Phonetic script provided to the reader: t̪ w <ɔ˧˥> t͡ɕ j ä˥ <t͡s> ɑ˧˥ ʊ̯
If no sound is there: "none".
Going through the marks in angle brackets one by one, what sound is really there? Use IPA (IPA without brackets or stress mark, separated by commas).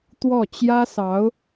ɔ˥˩, s